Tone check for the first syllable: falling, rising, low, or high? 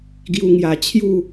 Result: high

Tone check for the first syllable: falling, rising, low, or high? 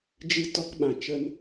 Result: high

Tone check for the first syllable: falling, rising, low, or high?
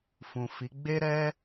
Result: low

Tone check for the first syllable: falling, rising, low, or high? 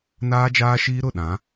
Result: high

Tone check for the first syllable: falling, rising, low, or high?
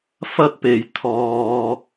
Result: high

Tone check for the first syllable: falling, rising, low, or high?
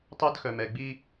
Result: high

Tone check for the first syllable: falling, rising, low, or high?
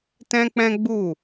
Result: high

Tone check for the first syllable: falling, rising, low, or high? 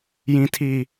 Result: high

